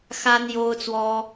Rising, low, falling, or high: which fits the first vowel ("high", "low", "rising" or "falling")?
high